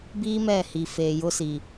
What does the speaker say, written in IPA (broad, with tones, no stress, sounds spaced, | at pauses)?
b iː˦ m ɛ˦˨ h i˨ f eː˨ j ʊ˦ s i˨